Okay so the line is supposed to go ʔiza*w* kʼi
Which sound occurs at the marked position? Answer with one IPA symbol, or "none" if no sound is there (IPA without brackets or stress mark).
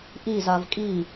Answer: v